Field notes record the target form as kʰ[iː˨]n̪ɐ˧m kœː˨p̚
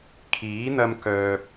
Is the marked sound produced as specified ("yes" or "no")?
no